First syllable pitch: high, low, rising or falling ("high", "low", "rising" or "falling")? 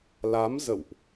rising